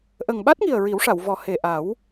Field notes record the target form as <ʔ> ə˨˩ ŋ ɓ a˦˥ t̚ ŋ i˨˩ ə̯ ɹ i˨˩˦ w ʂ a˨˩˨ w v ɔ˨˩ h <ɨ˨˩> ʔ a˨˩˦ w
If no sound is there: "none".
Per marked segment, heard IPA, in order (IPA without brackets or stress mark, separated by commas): ʔ, e˨˩